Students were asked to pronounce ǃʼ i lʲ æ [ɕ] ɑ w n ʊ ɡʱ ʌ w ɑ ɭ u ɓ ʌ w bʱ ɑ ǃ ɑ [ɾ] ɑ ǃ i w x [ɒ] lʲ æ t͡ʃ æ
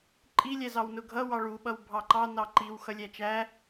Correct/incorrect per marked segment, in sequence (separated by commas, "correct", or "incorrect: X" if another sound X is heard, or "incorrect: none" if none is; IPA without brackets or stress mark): incorrect: z, incorrect: n, incorrect: ʌ